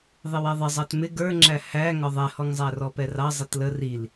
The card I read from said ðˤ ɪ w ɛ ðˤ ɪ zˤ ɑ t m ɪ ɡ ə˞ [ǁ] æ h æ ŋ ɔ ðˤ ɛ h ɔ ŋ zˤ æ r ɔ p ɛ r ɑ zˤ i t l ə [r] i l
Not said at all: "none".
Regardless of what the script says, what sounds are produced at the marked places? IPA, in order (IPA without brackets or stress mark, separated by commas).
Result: ŋ͡ǁ, r